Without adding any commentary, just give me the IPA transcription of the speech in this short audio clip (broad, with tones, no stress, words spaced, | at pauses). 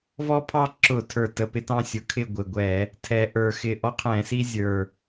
vɔ˦pʰɑ˦ ǁʊ˧˩˧tʰə˞˨˩tə˨˩ pɪ˦tɑ̃˦sʲʊ˨˩kʰɪ˥˨ ɡʷɪ˨˩ɡʷɛ˧˩˧ | tʰɛ˨˩ʔə˞˧˩˧ xɪ˨˩ʔɔ˦qʰɛ̃˧˩˧si˦ zʲə˞˨˩